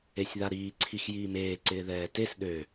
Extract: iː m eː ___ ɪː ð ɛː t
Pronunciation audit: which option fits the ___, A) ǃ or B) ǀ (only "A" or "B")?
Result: B